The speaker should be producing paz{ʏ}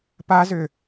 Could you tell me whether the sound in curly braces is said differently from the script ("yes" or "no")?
no